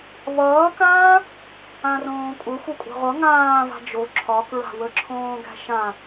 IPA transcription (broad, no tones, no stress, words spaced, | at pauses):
βʌːkãː | ãrõːkʷʼəxʷʌ kʷʼa̤ʁʷʌ ŋãː va̤d͡ʒo ǁʰɒkɹa̤ wəǁʰõːɡæ̤ʃã